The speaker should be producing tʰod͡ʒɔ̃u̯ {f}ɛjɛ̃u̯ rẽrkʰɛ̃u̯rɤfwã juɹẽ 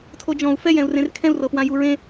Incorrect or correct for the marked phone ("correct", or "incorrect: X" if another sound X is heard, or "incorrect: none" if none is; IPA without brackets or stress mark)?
correct